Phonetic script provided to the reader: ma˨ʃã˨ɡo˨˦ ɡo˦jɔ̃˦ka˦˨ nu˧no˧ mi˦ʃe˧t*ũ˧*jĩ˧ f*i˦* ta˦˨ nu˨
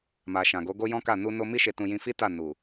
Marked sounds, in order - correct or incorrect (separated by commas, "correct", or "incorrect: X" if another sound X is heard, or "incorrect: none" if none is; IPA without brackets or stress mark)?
correct, correct